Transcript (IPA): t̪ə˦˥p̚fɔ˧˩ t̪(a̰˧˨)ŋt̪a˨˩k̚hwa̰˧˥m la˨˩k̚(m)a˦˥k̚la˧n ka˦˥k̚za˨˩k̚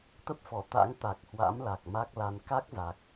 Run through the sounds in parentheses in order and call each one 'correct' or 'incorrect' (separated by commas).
incorrect, correct